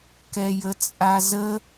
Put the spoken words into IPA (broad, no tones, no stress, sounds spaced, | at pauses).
k ɛ j ə t͡sʼ a z ə